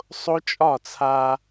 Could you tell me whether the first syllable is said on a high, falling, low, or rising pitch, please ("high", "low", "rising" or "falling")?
high